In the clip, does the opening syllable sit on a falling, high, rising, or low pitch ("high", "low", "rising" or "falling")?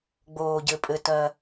low